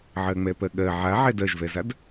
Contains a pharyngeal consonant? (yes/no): yes